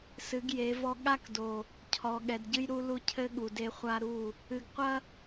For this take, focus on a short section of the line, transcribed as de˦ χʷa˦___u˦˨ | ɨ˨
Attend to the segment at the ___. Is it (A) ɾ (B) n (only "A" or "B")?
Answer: A